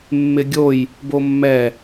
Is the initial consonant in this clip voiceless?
no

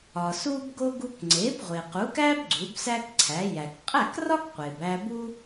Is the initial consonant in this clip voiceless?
yes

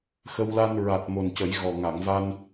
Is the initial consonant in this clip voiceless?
yes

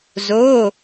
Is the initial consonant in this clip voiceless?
no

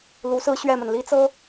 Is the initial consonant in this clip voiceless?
no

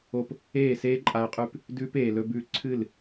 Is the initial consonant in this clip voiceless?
yes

